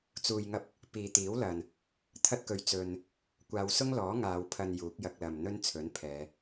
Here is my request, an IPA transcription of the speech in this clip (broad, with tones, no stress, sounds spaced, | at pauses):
t͡s uː˨ j ŋ ɐ˧ p̚ | p iː˨ t̪ iː˨˥ w l ɐ˨ n | t̪ʰ ɐ˥ t̚ k ɵ˧ ɥ t͡s ɵ˧ n | kʷ aː˨˧ w s ʊ˥ ŋ l ɔː˨˥ ŋ aː˨˧ w pʰ ɐ˧ n j uː˨˥ k̚ j ɐ˧ k̚ l ɐ˨ m n̪ ɵ˥ n t͡sʰ ɵ˨˥ n pʰ ɛː˨˧